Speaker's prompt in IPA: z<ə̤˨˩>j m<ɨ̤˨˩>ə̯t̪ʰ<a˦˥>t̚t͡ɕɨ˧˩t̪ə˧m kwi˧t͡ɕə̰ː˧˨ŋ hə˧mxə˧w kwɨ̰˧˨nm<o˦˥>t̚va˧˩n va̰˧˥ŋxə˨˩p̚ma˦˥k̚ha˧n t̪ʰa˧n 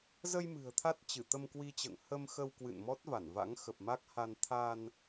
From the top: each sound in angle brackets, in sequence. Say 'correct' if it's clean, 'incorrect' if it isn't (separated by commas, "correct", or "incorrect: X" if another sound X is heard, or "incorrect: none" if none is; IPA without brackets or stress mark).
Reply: incorrect: ə˧, correct, correct, incorrect: ɔ˦˥